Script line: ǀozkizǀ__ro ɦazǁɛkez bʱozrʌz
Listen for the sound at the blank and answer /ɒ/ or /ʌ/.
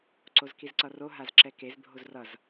ʌ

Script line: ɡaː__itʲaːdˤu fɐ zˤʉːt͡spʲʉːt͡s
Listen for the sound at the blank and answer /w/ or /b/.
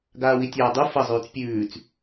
w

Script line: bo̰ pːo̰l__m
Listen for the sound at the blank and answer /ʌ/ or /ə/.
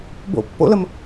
ə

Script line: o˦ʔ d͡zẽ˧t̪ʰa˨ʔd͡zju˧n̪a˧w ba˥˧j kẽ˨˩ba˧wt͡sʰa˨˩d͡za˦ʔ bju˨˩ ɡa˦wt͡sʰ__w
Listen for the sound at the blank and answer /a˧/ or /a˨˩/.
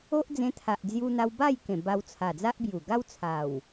a˨˩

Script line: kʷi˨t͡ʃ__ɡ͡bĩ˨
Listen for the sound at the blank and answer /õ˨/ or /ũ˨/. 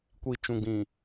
ũ˨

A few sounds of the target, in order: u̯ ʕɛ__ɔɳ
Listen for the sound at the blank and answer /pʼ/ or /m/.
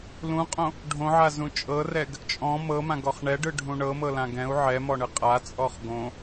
m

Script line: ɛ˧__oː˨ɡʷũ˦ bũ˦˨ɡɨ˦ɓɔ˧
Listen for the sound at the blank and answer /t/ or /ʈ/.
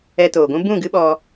t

